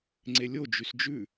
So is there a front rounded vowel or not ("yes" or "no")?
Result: yes